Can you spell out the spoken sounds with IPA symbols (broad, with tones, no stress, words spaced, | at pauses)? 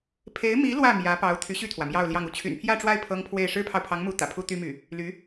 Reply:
pʰe˧˥ɪ̯mi˧˥ lwä˥˩ mjä˧˥ pɑ˧˥ʊ̯ t̪ʰy˧˥ɕy˥˩t̪ʰwä˩ mjɑ˥˧ʊ̯ljɑ˥˧ŋ u˥˩t͡ɕʰy̰˨˩npʰjä˥˧ʈ͡ʂwa˥˩ɪ̯ pʰɤ˥ŋpʰwe˥˩ɪ̯ ʂɻ̩˥pʰɑ˨ʊ̯pʰɑ˧˥ŋmu˧˥ t̪ä̰˨˩pʰu˥t̪y˥my˥˩ | ly˧˥